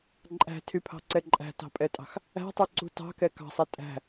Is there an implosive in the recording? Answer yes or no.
no